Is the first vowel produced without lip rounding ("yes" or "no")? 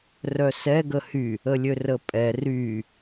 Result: no